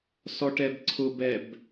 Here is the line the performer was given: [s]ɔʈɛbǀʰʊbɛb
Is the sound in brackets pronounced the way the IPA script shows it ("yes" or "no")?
yes